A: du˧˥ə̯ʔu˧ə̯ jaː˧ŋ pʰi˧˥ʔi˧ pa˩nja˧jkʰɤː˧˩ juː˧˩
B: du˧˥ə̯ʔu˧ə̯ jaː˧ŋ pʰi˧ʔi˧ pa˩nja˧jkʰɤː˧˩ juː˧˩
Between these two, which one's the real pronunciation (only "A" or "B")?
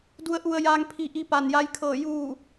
B